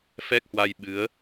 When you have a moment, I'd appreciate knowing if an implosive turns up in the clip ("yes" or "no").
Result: yes